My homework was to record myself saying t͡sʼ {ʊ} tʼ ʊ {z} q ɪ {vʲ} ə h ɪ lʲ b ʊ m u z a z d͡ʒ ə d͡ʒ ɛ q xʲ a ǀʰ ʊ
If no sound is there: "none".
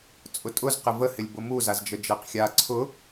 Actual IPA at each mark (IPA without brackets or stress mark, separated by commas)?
ʊ, z, v